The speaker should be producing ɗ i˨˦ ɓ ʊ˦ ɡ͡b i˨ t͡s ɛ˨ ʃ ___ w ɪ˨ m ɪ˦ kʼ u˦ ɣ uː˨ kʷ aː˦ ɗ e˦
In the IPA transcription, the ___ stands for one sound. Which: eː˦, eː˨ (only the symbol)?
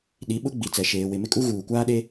eː˨